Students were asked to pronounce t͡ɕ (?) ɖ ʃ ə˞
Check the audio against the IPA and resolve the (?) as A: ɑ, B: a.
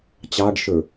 A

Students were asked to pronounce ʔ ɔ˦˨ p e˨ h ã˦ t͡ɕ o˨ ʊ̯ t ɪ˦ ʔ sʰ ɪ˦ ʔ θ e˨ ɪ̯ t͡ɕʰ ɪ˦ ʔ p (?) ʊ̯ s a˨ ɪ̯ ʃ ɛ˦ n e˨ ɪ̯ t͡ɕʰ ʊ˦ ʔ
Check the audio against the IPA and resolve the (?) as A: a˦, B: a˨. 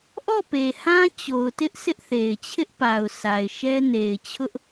B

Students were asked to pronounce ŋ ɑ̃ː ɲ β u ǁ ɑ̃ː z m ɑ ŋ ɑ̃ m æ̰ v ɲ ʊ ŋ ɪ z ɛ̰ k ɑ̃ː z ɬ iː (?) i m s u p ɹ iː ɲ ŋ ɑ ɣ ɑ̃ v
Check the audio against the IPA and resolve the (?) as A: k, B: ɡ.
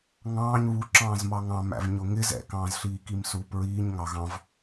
A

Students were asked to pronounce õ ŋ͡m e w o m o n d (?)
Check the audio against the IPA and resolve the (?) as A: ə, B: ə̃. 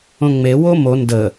A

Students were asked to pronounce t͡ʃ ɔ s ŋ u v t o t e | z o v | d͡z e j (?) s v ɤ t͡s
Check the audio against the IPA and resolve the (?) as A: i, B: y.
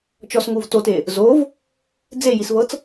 A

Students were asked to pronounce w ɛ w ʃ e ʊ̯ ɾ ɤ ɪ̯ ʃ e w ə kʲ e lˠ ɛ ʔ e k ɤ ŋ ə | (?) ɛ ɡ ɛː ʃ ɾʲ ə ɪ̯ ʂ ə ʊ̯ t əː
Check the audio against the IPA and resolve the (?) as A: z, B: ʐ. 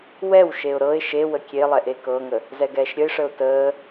A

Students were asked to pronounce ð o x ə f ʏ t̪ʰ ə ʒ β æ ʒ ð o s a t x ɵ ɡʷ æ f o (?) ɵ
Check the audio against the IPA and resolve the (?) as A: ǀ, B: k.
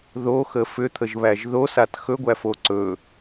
A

